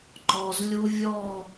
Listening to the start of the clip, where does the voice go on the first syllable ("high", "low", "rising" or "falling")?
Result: low